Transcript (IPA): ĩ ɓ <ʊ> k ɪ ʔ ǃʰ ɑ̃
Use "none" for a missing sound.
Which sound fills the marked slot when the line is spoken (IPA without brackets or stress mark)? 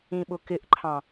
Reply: ʊ